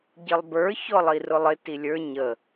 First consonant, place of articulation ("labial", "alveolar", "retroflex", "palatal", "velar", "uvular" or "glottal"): palatal